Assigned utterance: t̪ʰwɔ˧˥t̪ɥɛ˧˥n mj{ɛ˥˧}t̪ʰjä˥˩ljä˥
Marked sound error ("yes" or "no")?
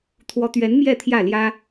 no